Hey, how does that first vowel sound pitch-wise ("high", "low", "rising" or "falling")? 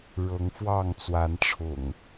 rising